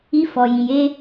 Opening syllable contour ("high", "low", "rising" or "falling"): high